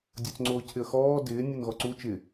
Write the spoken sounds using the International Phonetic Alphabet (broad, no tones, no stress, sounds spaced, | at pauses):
dʲ o t͡s ŋ͡ǀ oː cʰ ɪ ə̯ x ɔː d ɪː nʲ o n ɣ ɔ ǀ u t͡ʃ ɪ